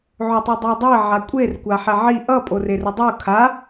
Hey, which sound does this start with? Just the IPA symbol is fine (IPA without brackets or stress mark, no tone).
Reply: ʕ